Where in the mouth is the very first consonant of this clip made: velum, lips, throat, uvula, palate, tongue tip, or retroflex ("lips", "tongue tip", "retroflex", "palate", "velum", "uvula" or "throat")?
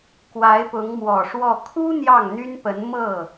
velum